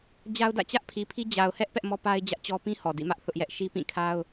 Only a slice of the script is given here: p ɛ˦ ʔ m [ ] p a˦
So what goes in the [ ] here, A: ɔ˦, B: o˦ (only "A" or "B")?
A